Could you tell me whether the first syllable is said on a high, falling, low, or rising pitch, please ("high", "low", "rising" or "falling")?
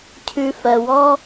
low